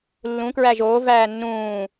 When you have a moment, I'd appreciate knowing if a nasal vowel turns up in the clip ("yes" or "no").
yes